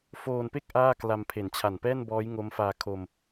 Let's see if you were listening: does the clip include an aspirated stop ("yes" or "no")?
yes